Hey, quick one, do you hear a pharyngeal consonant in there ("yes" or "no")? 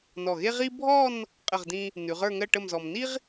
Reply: no